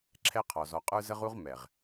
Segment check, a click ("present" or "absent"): present